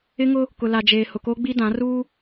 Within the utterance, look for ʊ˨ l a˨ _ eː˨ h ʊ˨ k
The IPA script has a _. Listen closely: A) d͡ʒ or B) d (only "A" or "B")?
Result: A